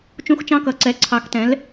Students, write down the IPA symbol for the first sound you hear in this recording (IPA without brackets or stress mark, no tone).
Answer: t͡ʃ